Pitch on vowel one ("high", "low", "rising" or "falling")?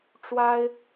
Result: high